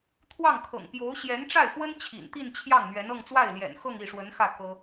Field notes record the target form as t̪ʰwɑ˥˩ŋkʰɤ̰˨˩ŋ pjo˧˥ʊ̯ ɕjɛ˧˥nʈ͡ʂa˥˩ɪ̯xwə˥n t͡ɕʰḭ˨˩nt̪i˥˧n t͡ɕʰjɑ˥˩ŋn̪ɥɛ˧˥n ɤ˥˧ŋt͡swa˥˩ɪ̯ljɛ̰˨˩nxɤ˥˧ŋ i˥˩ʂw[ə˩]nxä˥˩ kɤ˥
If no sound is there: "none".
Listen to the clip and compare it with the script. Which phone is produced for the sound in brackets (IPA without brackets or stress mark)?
ə˧˥